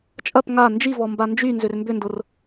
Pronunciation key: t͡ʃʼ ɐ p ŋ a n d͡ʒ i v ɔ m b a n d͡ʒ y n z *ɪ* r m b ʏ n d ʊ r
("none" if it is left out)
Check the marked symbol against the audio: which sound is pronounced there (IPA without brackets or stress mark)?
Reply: ʏ